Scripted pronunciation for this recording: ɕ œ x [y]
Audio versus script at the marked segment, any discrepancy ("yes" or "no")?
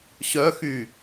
no